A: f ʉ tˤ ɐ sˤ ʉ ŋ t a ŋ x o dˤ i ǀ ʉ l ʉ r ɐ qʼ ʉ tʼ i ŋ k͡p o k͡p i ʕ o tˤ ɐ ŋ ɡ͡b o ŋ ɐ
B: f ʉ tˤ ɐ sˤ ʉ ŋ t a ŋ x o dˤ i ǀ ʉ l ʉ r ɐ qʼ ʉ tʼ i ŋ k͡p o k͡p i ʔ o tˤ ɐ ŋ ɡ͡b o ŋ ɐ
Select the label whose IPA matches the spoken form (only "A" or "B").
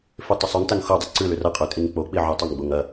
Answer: A